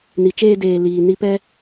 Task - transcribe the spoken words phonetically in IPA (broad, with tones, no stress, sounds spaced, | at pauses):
n i˨ t͡ʃ eː˧ d eː˨ l iː˨ n i˨ p ɛ˧